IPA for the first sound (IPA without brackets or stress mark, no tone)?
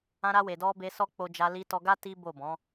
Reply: ã